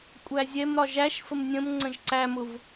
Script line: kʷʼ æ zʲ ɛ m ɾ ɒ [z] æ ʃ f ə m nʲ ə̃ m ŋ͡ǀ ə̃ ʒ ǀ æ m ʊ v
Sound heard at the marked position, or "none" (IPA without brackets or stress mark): ʒ